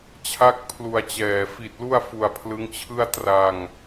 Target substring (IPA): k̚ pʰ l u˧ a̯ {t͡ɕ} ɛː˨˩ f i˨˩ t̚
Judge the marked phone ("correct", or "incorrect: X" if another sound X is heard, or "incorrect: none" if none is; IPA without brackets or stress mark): correct